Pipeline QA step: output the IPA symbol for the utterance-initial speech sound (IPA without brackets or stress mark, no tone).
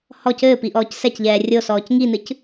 h